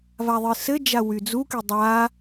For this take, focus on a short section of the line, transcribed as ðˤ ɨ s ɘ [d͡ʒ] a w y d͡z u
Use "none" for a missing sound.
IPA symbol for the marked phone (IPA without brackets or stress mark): d͡ʒ